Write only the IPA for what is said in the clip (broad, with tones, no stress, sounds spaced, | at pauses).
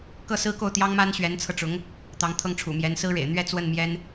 k ɤ˥˩ s ɹ̩˥ k o˥˩ ʊ̯ t̪ j ɑ˥ ŋ m a˥ n ɕ ɥ ɛ˧˥ n t͡sʰ ɤ˧ ʈ͡ʂ ʊ˧˥ ŋ | t̪ ɑ˧˥ ŋ t̪ʰ ɤ˥˩ ŋ ʈ͡ʂʰ ṵ˨˩ m j ɛ˧˥ n s ɹ̩˥ ɻ ḛ˨˩ ɪ̯ n̪ ɥ ɛ˥˧ t͡s w ə˥˩ n m j ɛ˥ n